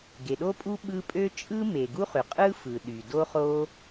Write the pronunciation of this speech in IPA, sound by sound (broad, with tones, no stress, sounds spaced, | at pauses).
ɡ e˩ ɗ o˥ pʼ u˥ ɓ ɯ˥ pʼ ø˥ t͡ʃʼ ɯ˥ m e˩ ɡ u˥ χ y˩ qʼ ɯ˥ f ɯ˩ ɗ y˩ d o˥ χ o˥